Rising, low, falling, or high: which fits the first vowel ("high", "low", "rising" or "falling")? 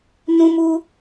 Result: high